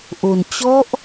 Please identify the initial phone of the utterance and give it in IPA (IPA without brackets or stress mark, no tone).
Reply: ʔ